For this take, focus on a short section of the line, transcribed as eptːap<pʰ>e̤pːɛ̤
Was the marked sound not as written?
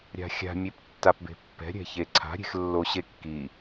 yes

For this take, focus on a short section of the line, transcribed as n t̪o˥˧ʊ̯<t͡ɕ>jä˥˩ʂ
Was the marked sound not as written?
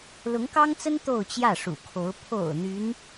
no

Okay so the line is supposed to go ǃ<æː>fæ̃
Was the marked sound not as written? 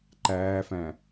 no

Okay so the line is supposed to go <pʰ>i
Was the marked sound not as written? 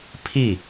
no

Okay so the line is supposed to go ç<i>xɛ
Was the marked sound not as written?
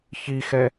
no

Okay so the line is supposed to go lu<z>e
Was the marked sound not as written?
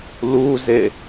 no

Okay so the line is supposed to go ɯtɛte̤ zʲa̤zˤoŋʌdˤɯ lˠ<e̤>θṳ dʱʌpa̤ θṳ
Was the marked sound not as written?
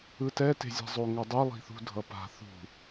yes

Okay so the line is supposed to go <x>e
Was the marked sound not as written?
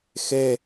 no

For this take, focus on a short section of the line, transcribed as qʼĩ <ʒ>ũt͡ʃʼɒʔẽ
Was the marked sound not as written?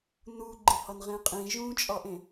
no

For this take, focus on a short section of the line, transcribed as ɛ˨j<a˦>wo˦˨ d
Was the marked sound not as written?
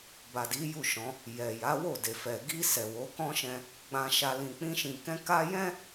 yes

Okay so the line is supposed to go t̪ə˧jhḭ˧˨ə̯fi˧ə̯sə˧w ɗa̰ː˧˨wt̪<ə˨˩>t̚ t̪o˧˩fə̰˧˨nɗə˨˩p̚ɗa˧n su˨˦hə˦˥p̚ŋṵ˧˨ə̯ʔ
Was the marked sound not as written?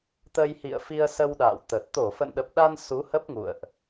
no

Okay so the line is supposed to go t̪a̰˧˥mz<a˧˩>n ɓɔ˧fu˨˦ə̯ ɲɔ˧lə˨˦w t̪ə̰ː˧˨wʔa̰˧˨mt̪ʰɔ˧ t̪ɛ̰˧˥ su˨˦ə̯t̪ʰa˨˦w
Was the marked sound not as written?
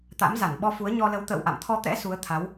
no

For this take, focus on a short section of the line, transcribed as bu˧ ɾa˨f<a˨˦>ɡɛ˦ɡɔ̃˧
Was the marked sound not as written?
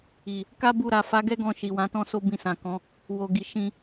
no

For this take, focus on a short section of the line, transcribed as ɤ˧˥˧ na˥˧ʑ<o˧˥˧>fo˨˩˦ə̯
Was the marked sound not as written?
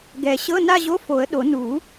no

